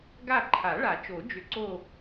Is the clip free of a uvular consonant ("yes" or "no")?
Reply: yes